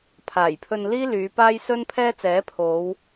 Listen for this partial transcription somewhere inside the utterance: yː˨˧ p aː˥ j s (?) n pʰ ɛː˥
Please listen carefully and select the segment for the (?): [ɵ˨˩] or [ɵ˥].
ɵ˥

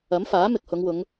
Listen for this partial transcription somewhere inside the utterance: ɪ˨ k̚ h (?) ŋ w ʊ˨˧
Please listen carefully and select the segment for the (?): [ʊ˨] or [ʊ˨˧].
ʊ˨˧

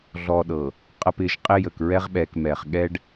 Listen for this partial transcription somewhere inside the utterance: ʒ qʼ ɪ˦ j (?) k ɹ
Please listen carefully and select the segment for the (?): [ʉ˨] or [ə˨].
ə˨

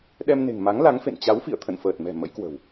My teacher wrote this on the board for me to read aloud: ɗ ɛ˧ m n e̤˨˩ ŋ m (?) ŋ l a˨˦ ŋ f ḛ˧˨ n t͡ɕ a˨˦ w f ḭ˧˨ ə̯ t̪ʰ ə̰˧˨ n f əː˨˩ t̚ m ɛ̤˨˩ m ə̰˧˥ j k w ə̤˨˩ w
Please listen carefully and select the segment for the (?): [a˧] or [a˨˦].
a˨˦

